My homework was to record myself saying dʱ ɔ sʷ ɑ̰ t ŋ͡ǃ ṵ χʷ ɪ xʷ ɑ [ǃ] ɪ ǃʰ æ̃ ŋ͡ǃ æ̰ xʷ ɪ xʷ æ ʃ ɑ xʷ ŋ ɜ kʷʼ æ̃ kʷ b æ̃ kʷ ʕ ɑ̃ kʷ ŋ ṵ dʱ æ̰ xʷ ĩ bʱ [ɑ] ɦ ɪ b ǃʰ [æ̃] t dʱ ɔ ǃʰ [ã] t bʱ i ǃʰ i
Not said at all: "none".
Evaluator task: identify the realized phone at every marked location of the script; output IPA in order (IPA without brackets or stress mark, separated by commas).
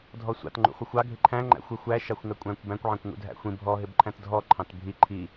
ɡʱ, ɔ, æ̃, ɑ̃